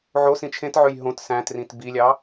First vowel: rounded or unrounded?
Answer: rounded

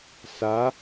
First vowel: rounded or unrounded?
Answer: unrounded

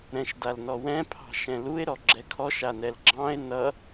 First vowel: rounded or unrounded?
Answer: unrounded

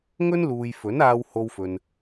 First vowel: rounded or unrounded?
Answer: rounded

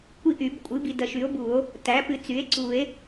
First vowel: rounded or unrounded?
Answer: unrounded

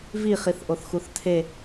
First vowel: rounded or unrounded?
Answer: unrounded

